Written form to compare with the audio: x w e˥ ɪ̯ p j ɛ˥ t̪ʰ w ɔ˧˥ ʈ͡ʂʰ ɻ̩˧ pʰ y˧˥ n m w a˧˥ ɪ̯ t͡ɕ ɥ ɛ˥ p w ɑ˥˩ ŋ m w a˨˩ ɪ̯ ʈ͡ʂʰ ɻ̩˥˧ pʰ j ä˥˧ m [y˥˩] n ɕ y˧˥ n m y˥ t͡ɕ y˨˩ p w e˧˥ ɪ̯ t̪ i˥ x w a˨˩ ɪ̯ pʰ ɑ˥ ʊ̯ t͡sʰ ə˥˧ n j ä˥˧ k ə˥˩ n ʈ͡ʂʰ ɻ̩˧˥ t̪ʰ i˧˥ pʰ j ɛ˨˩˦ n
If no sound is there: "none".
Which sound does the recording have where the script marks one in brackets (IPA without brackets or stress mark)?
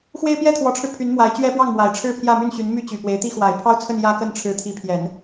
y˥˩